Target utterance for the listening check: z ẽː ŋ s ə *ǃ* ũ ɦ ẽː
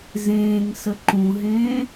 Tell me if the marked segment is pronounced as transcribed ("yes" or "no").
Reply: yes